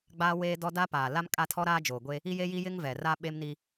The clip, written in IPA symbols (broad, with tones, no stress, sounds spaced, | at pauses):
ɡ͡b aː˦ w eː˦ d ɔ˦ d a˦ p aː˨ l a˦ m kʼ a˦ tʰ ɔ˦ ɾ aː˦ d͡ʒ oː˨ ɡʷ e˦ | i˦ j e˦ j i˦ j ɪ˦ ŋ v ɛ˨ r a˦ ɓ e˦ m n i˦